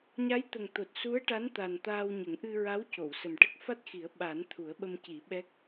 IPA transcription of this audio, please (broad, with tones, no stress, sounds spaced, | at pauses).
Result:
ɲ a˧˥ j t̪ ə˨˩ ŋ t̪ o˨˩ t̚ s u˧˥ ə̯ ʈ a˧˥ n t̪ a˨˩ n t̪ aː˧ w ɲ ə˨˩˦ ŋ ʔ ɨ˧ ɹ a˧˥ w c o˨˩˨ w s ə˨˩ m ʈ ə˦˥ k̚ f a˦˥ t̚ x i˨˩˦ ə̯ ɓ a˨˩˦ n t̪ʰ u˨˩˦ ə̯ ɓ ə˧ m c i˨˩˦ ɓ ɛ˦˥ k̚